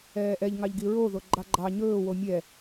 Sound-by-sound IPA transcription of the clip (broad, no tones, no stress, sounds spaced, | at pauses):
ɛː ʔ ɛ ʎ ŋ ɑ ʎ ɡ i ɹ o ð o ɡ͡ǃ ɑ ɡ͡ǃ ɑ ɲ ɵː w o mʲ ɛ